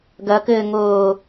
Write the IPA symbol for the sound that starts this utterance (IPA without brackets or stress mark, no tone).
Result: ɡ